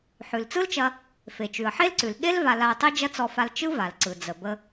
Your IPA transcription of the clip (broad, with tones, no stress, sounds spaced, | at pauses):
ħ ʉ˩ l t͡s ɯ˥ l t͡ʃ ɐ˧ | f e˩ t͡ʃ ʉ˩ ə̯ ħ e˥ l ǀ ʉ˩ l ɠ e˥ l v a˧ l a˧ ə̯ tˤ e˥ d͡ʒ ɐ˥ t͡s ɔ˧ f a˧ l t͡ʃ ɯ˥ v a˩ l ǀ ɯ˩ d͡z ə˩ b ə˧